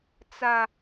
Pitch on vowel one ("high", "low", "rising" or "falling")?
high